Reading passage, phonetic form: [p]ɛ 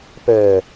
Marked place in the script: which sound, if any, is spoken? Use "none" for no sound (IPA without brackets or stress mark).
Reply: p